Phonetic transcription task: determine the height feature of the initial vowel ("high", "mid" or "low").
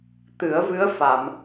high